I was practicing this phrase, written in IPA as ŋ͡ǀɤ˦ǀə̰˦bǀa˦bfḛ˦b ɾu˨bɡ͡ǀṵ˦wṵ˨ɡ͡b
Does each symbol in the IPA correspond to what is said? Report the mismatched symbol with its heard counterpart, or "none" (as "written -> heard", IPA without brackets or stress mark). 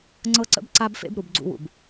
ɡ͡b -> b